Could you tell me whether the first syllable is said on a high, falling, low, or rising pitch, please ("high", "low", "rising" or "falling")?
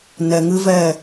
low